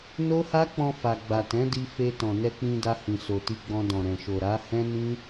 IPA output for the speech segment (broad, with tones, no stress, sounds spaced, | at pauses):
n o˦ h a˦ k͡p ɔ̃˧ f a˨ ɡ͡b a˨ t ɛ̃˨˦ d i˧ f e˧ t ɔ̃˨ n ɛ˧ k͡p ĩ˧ d a˧ h ĩ˨ s o˨ t i˧ ɡ͡b ɔ̃˧ d ɔ̃˨ ɾ ɛ̃˨ ʃ o˨ ɾ a˨˦ h ɛ̃˦ n ĩ˦